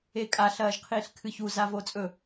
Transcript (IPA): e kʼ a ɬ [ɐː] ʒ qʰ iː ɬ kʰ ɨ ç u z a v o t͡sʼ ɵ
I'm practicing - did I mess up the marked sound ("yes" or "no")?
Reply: no